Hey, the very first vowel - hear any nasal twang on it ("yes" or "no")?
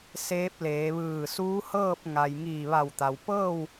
no